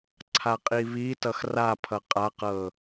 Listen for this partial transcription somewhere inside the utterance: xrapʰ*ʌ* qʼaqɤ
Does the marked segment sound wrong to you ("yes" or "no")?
no